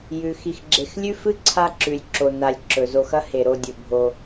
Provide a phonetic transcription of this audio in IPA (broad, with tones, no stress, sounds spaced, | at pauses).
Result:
j ʉ˨ x i˧ x ɡ͡ǁ e˧ x lʲ ʉ˦ f ɨ˦ ǀʰ a˦ ǁ ʉ˨ lʲ ǁ o˨ n a˨ lʲ ǁ ɵ˨ z o˧ x ɐ˦ h e˨ ɾ o˧ dʲ ɵ˨ bʱ o˧